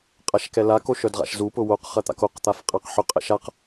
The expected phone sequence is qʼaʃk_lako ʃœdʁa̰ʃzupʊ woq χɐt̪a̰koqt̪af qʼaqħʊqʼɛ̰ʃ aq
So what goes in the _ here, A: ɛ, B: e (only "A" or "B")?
A